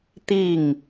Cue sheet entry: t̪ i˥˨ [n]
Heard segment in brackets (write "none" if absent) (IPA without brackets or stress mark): ŋ